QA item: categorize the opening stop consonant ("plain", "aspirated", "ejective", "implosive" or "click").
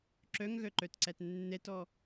click